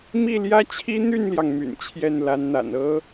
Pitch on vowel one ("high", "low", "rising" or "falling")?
falling